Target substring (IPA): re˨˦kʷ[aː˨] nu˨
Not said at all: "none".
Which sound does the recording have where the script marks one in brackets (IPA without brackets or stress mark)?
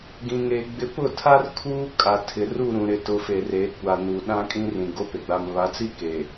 a˨